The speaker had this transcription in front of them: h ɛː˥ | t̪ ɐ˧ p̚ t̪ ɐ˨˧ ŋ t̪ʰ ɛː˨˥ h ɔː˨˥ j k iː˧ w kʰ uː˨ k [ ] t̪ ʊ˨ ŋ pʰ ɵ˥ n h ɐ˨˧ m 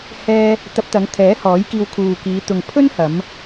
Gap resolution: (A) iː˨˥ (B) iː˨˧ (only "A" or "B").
B